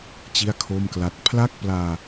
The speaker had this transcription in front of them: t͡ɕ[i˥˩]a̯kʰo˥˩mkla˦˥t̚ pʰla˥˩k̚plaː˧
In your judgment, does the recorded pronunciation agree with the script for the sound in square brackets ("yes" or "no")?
yes